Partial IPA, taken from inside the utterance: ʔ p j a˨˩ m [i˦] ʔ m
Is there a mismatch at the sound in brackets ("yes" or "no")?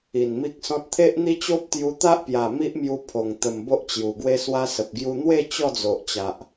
no